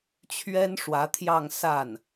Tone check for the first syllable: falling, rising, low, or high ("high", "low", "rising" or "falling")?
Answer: high